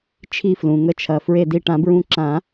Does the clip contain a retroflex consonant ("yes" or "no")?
yes